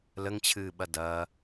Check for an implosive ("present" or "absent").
present